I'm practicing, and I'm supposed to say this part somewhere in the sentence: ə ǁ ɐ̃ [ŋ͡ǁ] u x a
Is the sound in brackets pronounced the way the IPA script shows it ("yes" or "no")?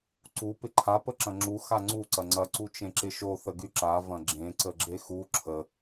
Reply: yes